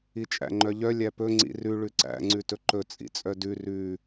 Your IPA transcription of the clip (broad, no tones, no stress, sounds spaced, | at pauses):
i t͡ʃʼ æ̰ ŋ͡ǃ œ ʎ œ lʲ æ p ɵ ŋ͡ǀ ḭ r ʉ ɭ ʉ ǀ æ̰ ŋ͡ǀ ʉ t ɵ ǃ ɵ t͡sʼ ḭ t͡sʼ œ d ʉ r ʉ